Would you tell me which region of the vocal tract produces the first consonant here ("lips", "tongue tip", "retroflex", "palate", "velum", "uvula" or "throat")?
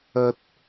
tongue tip